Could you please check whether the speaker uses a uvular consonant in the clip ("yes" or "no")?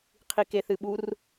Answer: yes